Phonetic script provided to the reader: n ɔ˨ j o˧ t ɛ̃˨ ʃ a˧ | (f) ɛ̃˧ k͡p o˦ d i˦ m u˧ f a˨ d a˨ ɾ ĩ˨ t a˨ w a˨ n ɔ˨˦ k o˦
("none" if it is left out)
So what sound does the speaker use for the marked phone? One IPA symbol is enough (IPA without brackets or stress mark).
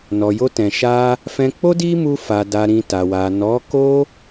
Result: f